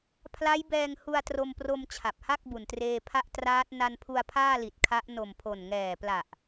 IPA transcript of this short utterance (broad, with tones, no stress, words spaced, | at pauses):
pʰla˦˥jbɛː˧ŋ hu˧a̯tro˧mpro˧m t͡ɕʰa˨˩p̚ha˥˩k̚ bu˨˩ntreː˧pʰa˥˩ʔ traː˦˥t̚ na˧npʰu˧a̯ pʰaː˥˩li˨˩t̚kʰa˦˥ʔ no˨˩mpʰo˨˩nŋɛː˨˩pla˨˩ʔ